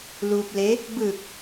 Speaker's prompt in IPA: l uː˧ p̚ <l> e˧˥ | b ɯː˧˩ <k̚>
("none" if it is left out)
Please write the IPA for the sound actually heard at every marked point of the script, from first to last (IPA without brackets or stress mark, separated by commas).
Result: l, k̚